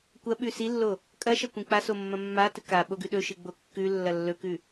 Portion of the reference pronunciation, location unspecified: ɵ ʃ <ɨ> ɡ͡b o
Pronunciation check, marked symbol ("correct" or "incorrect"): correct